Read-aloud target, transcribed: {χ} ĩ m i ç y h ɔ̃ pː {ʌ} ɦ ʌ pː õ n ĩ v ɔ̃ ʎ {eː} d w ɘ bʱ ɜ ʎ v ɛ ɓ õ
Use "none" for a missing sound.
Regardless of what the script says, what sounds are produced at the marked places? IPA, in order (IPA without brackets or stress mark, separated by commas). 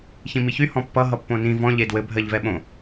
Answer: ç, ʌ, e